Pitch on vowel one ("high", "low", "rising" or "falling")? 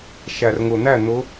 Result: low